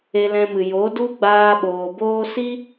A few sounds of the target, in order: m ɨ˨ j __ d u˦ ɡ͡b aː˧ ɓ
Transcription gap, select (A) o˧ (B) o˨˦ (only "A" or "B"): B